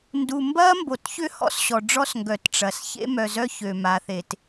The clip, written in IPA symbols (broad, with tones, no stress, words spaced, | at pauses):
ndu˨mbɐ˦mbo˨tçʏ˦ hɔ̰˦sɕɔ˨ɖ͡ʐɔ˦sŋɡœ˨t ʈ͡ʂɐ˨s çḛ˦mœ˨zœ˦ çø˨ma˨˦θe˨t